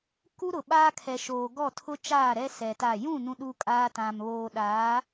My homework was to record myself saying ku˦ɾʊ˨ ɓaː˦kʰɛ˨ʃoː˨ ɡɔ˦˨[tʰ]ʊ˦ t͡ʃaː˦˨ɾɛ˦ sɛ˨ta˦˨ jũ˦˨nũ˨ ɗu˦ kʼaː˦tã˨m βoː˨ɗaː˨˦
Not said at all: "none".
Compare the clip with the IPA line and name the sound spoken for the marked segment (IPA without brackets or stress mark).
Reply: tʰ